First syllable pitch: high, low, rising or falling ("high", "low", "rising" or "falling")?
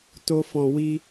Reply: high